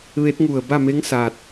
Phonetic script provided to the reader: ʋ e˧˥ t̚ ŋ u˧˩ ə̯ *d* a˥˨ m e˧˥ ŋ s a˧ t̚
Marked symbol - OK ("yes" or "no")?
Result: no